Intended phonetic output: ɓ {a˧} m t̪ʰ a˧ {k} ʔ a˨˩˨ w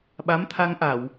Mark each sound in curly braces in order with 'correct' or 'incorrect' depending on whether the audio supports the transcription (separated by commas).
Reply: incorrect, incorrect